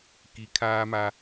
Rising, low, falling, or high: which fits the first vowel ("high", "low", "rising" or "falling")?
rising